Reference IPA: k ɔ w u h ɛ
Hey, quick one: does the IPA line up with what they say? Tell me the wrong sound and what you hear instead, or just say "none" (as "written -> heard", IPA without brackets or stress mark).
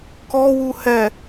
none